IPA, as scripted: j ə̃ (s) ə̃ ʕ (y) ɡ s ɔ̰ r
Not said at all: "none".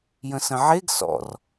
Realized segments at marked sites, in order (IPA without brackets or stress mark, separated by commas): s, e